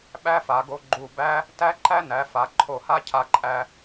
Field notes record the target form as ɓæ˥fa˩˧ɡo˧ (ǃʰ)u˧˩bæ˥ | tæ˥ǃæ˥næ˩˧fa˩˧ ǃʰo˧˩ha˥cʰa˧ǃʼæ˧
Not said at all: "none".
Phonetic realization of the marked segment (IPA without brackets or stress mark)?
ɡ͡ǃ